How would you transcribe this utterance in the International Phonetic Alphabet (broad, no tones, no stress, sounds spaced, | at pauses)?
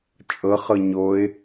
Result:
t͡ʃʼ ɤ χ ɤ ɲ o ɪ̯